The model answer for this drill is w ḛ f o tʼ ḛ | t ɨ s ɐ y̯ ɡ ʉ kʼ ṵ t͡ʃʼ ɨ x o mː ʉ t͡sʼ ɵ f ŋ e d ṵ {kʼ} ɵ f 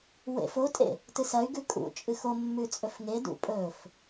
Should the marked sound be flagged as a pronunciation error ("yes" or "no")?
yes